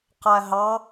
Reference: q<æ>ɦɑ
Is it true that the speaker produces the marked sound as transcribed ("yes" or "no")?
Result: yes